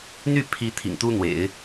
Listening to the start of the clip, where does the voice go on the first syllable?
falling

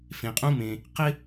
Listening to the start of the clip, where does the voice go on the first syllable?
low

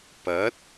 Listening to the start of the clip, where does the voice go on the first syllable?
rising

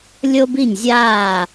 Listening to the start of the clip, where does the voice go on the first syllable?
high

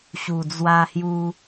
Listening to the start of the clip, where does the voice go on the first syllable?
low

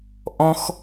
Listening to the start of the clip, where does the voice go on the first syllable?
high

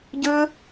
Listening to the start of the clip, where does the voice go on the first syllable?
high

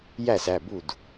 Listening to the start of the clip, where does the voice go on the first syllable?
falling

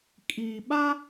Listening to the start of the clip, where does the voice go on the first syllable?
low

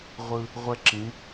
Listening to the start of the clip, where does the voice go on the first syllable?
high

